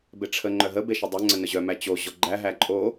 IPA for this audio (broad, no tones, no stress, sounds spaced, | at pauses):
b e ʈ͡ʂʰ ə ŋ͡ǃ œ ɦ ə b e ʃ ə dˤ œ ŋ͡ǀ ə n ə ʑ œ m æ t͡ɕ o ʑ ɔ ɡ͡ǃ æ ɦ æ ǃʼ o